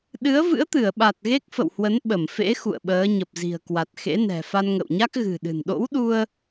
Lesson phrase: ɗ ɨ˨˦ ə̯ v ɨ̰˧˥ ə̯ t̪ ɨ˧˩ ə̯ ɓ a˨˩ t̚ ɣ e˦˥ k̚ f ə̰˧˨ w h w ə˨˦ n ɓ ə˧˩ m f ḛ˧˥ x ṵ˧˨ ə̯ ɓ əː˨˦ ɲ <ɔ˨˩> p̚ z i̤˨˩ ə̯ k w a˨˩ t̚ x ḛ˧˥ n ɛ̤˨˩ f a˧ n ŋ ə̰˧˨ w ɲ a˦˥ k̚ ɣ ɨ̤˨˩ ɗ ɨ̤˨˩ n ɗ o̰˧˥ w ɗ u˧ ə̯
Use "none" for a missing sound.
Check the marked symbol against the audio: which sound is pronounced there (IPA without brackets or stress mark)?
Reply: ə˨˩